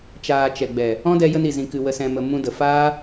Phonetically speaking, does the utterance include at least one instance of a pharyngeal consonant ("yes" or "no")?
no